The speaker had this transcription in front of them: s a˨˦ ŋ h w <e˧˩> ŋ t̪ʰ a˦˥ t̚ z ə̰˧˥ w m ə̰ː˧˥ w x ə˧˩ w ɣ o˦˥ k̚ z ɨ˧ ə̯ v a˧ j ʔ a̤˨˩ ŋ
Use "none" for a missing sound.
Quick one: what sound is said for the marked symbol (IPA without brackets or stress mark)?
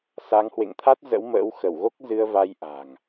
ḛ˧˨